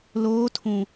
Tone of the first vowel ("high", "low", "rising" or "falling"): rising